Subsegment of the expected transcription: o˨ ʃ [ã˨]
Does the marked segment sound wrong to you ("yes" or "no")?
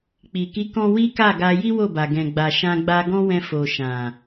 no